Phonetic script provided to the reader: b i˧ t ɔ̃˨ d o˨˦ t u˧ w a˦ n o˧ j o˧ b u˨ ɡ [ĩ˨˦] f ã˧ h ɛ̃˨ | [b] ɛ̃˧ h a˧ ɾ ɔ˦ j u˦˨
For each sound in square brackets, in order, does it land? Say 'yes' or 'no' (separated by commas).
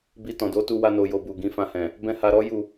yes, yes